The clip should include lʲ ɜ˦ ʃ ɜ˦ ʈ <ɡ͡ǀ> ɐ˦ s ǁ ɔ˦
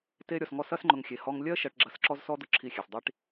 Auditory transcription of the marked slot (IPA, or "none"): ɡ͡ǁ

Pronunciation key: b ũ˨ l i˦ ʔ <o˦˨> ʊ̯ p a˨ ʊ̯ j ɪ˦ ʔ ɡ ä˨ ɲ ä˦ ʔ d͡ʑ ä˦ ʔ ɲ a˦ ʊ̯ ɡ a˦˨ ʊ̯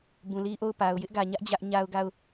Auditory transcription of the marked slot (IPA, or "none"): o˦˨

